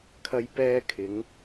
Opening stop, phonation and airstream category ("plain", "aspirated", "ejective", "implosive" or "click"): aspirated